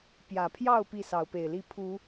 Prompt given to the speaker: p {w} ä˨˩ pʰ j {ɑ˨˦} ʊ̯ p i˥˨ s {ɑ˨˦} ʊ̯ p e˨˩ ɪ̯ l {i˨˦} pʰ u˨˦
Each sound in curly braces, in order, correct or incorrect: incorrect: j, incorrect: ɑ˥˨, correct, incorrect: i˥˨

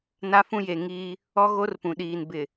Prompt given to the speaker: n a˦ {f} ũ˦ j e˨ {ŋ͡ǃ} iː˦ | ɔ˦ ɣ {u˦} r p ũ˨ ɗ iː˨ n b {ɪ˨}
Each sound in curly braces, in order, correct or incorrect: correct, incorrect: ŋ, incorrect: o˦, correct

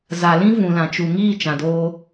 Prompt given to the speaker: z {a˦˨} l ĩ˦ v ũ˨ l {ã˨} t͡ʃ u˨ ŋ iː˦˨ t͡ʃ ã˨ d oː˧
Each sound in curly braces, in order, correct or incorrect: incorrect: a˨, correct

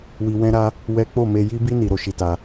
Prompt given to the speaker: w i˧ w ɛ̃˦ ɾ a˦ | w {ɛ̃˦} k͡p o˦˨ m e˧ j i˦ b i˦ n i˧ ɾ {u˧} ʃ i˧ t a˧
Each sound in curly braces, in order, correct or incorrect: incorrect: ɛ˦, incorrect: o˧

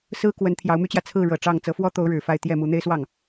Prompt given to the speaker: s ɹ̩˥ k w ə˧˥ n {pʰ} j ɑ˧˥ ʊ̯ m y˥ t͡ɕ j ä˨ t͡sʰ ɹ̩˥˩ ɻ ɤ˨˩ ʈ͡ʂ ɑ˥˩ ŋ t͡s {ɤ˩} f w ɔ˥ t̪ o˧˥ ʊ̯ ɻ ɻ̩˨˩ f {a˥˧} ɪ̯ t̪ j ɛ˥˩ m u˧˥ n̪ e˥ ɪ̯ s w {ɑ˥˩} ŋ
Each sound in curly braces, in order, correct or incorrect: incorrect: t̪ʰ, incorrect: ɤ˧˥, correct, correct

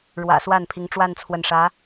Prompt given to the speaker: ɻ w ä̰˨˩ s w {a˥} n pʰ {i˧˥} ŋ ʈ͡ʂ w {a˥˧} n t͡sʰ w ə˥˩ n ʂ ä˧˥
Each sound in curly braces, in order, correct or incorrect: incorrect: a˥˩, correct, correct

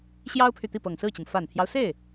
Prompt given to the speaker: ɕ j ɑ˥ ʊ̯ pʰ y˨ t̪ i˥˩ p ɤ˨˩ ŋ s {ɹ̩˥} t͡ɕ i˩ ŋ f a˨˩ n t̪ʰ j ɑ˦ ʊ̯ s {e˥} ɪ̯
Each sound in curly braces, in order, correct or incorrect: incorrect: ɹ̩˥˩, incorrect: e˥˩

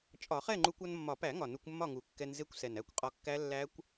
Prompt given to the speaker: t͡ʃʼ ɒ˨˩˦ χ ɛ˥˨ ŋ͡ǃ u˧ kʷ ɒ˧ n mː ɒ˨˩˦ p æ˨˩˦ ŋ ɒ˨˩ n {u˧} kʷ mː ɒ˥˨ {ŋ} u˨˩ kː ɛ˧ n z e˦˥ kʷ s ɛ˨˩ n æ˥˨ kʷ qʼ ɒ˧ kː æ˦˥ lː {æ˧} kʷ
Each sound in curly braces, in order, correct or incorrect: correct, correct, incorrect: æ˦˥

